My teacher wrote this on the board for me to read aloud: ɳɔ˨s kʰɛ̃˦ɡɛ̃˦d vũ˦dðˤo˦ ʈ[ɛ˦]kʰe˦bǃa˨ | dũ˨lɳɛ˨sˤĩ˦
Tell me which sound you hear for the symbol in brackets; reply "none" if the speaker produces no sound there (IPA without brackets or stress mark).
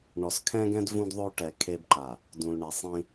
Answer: ɛ˨